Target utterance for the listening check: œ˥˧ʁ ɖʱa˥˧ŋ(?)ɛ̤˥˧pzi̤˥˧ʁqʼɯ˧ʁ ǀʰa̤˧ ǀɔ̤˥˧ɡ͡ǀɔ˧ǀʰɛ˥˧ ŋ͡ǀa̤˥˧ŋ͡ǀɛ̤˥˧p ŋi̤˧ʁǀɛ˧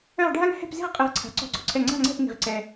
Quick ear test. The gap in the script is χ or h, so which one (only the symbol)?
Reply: h